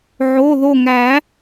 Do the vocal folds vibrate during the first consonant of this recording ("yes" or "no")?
yes